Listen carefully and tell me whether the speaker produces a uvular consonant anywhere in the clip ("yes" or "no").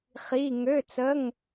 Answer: yes